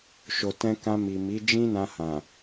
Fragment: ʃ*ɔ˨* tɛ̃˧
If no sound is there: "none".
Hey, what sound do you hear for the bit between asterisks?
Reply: o˨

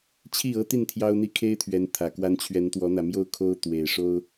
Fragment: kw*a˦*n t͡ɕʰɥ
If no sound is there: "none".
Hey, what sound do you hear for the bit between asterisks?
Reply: a˦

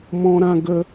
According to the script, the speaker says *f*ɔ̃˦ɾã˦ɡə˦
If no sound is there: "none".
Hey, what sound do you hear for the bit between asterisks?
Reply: m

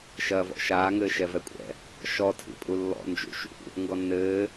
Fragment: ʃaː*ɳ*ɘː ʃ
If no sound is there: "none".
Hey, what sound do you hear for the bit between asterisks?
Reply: ŋ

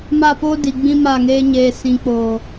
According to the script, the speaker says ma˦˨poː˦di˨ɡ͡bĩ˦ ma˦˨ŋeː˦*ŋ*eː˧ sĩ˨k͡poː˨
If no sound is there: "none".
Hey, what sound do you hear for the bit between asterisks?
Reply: ɲ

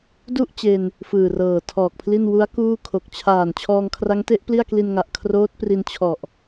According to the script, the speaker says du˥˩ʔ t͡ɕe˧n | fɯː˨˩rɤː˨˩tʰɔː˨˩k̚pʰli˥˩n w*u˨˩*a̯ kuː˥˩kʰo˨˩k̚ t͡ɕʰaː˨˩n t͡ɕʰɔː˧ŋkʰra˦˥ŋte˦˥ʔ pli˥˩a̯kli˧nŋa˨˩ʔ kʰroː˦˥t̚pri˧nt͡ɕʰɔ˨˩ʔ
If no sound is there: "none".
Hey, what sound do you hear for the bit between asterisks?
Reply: u˦˥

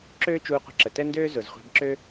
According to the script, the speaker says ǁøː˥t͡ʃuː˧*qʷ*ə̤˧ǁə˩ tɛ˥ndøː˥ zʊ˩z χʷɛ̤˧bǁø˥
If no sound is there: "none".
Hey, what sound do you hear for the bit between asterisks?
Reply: qʷ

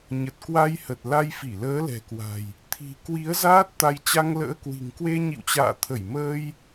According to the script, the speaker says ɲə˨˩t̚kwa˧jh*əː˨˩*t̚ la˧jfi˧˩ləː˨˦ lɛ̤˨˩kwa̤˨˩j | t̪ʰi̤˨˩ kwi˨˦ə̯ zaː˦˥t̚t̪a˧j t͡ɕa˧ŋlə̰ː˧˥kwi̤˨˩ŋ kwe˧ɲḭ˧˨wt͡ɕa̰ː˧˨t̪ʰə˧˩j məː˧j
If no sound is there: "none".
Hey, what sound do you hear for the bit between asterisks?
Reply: ə˨˩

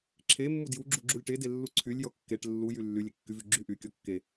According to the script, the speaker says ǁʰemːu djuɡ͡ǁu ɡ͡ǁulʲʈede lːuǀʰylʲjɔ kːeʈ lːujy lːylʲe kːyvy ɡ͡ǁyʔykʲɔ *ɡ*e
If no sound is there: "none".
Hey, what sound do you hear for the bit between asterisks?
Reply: kː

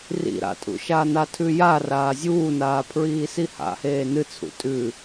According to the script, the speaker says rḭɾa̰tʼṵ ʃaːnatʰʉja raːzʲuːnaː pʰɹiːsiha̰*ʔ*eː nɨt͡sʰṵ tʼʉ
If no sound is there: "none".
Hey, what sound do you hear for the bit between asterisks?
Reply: h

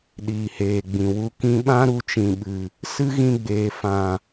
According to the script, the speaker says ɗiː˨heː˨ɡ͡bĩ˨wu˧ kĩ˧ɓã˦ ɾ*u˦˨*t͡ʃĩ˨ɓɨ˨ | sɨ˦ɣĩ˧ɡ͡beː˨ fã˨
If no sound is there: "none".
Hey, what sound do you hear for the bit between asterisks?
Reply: u˧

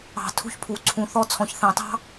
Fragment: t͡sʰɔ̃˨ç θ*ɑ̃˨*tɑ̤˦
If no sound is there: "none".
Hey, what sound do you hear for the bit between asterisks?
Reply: ɑ̃˨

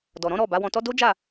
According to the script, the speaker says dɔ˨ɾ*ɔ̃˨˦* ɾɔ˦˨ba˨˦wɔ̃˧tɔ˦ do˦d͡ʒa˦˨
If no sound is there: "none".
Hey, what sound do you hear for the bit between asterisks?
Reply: ɔ̃˨˦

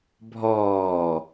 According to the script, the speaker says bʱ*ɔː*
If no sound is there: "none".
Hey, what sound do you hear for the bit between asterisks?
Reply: ɔː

